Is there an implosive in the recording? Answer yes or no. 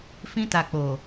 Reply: no